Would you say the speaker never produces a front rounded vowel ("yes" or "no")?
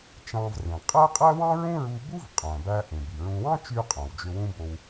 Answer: no